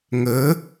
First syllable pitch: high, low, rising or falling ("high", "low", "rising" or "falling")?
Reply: rising